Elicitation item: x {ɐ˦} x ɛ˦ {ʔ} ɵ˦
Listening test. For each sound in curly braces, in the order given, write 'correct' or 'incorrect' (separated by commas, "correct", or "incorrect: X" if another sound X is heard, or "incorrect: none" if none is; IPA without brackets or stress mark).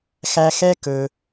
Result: incorrect: æ˦, incorrect: k